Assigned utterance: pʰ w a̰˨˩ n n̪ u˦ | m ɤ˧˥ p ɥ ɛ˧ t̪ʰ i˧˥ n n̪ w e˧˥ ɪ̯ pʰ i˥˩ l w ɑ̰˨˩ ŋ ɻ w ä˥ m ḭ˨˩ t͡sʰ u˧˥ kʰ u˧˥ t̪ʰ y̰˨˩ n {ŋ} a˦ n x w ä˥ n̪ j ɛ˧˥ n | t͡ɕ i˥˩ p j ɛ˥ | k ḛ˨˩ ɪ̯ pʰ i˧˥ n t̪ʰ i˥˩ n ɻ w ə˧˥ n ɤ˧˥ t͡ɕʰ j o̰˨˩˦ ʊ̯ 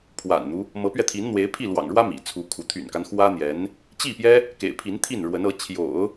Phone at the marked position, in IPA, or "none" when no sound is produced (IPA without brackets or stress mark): k